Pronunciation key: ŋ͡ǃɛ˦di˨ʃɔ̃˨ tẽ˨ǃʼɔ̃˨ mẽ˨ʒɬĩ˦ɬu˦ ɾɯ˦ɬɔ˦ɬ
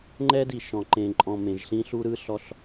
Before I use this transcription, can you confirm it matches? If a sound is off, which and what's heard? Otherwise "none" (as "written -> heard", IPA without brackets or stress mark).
t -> ǃ